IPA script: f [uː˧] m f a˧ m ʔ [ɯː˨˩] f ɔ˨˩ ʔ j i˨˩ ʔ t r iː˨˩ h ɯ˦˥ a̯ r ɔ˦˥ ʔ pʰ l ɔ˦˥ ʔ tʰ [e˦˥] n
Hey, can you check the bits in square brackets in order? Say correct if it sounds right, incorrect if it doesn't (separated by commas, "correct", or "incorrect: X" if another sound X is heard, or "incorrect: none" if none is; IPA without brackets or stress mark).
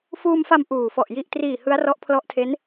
correct, incorrect: uː˨˩, correct